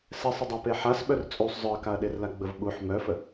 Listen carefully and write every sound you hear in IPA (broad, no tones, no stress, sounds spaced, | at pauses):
s ɛ sˤ ə dˤ a p e ħ a s ɓ œ r t͡sʼ u sˤ zˤ œ ɐ̯ k a ɐ̯ ɗ e r l a ɡ͡b ə v ɓ u ħ m œ f ə